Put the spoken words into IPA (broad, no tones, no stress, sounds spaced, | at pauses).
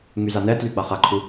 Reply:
ŋ y z a n ɛ t l y ɡ͡b a χ a ǃʰ u